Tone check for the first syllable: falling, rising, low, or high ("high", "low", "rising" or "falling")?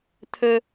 high